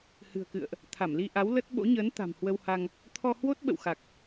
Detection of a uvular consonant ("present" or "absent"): absent